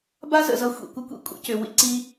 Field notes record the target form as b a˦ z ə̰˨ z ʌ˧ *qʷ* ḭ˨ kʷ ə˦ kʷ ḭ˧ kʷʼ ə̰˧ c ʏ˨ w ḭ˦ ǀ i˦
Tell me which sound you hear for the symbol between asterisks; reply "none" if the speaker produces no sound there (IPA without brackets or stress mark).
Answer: xʷ